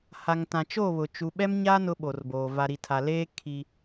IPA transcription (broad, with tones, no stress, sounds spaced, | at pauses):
h a˨ ŋ t ã˨ t͡ʃ o˦˨ β ʊ˨ t͡ʃ u˨ ɓ ɛ˦ m ɲ a˦ n ʊ˦ ɓ o˨ r b oː˨ v a˨ ɾ i˨ tʰ a˨ l eː˦ kʰ i˦